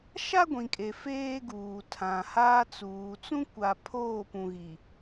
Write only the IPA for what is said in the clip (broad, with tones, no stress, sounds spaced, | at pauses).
ʃ a˦ ɡʷ ĩ˨ kʼ e˨ f eː˦ ɡ uː˨ tʰ ã˨ h aː˦ t͡s uː˨ t͡s ũ˦ kʷ a˨ pʰ oː˦˨ p ũ˨ ɣ i˨